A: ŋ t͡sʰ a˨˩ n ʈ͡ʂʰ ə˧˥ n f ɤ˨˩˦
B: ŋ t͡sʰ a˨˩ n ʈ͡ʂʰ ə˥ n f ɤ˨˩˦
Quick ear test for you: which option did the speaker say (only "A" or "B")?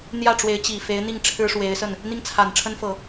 B